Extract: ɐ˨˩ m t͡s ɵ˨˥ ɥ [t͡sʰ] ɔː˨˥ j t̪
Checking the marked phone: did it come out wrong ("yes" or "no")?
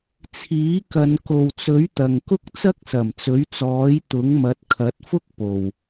yes